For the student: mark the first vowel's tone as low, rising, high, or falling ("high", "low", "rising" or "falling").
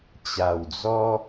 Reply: low